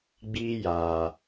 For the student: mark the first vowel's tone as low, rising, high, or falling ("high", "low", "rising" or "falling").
high